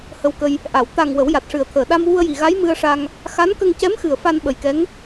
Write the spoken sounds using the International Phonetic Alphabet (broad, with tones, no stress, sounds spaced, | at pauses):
h ə˧ w k ə˧ j | ʔ a˨˩˨ w t̪ a˨˩ ŋ w ə˨˩˦ w j a˨˩ t̚ ʂ ɨ˨˩ ə̯ t̪ʰ əː˨˩ ɗ a˧ m w u˧ ə̯ j i˨˩ ɣ a˧˥ j m ɨ˧ ə̯ ʂ a˧ ŋ | x a˧˥ n k ə˧ ŋ c ɛ˧˥ m x ɨ˨˩ ə̯ f a˧ n ɓ ə˨˩ j k ɛ˧˥ ŋ